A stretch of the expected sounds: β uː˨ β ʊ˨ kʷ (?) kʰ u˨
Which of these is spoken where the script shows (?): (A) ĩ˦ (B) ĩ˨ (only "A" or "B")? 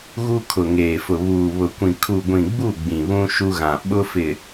B